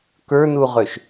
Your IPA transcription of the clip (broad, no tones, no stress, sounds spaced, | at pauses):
k ə˞ n u ʁ ø ʃ